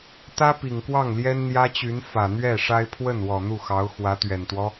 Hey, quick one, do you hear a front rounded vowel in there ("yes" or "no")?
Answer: yes